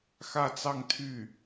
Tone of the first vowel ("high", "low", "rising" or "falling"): falling